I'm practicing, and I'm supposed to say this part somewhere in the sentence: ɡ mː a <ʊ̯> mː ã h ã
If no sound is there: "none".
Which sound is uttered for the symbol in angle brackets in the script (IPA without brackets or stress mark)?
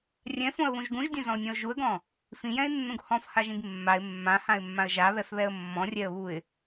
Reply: ɪ̯